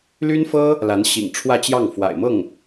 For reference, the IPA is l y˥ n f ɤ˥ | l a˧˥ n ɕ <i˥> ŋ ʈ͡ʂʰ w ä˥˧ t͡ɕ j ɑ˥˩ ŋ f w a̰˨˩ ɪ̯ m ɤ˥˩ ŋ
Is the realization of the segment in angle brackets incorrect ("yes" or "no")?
yes